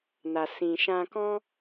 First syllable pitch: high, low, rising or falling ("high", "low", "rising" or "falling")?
low